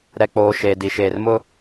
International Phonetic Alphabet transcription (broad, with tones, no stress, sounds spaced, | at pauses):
ɾ ɛ˨ k͡p oː˨ ʃ eː˨ d i˨ ʃ eː˨ r m ʊ˦